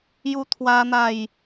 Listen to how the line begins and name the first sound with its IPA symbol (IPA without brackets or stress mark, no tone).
j